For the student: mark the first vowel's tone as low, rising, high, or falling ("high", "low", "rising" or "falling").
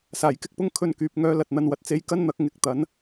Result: low